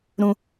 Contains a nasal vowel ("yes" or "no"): yes